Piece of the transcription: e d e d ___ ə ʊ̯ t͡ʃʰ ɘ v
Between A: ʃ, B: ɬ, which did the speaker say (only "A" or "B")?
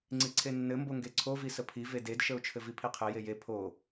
A